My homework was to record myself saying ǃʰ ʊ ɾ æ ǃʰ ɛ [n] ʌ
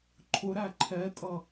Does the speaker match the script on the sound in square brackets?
no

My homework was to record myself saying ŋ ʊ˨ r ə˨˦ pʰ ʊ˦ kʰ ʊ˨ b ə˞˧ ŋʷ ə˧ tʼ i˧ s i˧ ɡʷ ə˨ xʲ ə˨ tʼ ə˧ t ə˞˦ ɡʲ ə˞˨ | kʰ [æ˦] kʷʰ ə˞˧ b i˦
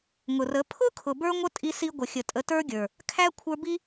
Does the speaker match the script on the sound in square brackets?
yes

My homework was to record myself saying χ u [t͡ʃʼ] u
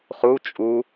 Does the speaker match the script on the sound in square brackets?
yes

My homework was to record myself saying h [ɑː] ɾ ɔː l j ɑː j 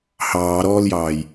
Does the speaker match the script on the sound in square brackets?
yes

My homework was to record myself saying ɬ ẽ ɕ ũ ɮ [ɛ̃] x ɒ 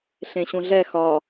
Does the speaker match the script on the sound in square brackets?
no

